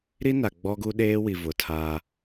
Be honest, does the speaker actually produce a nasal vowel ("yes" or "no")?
no